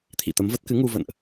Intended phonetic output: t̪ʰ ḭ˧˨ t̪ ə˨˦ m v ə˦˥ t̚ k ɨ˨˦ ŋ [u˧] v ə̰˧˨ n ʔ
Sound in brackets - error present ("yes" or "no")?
no